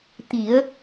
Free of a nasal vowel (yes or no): yes